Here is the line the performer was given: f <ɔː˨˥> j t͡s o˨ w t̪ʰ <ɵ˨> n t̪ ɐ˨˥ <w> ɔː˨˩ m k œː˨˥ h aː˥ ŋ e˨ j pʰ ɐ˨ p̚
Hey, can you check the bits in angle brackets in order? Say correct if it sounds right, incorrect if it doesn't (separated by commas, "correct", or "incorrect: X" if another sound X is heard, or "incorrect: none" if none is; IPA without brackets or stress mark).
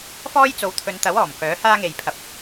incorrect: ɔː˥, correct, correct